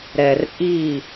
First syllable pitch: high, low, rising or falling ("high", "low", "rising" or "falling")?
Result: low